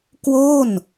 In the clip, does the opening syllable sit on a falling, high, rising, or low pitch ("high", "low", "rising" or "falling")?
falling